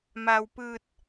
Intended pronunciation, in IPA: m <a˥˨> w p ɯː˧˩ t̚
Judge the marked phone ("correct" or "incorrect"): incorrect